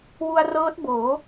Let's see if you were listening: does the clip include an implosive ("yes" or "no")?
no